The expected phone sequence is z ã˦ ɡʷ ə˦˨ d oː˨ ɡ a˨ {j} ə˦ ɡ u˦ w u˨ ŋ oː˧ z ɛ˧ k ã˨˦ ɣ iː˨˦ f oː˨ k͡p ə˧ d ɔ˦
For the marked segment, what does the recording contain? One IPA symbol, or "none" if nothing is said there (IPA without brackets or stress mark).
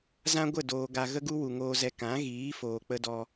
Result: ɣ